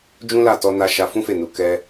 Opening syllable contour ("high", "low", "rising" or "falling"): high